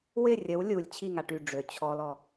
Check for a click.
absent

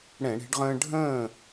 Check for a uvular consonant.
present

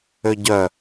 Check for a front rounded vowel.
present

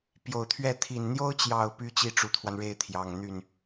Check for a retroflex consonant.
present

